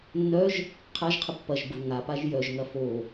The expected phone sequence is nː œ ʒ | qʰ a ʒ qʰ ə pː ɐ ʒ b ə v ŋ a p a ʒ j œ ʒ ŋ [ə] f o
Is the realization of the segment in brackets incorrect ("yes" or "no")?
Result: yes